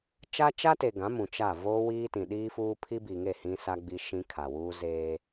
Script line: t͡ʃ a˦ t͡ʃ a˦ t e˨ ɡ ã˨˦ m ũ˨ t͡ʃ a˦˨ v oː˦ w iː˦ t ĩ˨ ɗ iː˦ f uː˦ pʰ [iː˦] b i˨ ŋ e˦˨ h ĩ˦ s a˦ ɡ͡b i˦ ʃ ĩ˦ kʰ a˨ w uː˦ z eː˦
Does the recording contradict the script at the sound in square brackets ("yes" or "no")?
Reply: yes